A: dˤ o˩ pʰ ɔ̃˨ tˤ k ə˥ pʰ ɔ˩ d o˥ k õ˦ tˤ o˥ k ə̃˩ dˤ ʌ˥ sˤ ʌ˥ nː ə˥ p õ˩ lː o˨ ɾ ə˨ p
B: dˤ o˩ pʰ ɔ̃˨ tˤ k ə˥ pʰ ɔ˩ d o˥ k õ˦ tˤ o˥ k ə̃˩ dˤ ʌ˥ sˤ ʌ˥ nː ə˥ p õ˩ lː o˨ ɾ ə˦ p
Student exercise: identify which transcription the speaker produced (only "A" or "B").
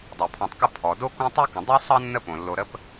B